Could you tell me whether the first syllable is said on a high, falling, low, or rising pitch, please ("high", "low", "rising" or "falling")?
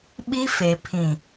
high